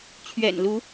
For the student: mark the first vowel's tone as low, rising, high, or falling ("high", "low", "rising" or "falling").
low